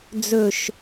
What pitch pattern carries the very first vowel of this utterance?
low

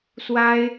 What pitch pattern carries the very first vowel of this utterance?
high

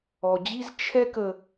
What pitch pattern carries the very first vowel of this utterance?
low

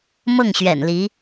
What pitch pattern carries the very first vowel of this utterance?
falling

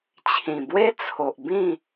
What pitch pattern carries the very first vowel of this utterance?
low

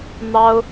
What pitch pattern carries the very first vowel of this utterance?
high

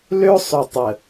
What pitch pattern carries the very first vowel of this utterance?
high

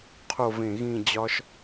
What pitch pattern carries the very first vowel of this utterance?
falling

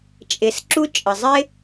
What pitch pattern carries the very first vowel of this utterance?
low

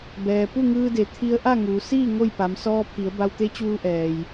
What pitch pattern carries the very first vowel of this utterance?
low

